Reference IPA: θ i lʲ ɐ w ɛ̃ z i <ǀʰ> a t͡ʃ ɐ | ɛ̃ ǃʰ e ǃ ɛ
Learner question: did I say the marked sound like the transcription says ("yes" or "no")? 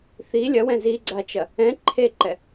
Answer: no